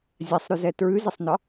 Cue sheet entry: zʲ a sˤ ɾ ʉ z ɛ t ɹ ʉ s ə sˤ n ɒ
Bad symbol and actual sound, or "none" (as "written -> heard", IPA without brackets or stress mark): s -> z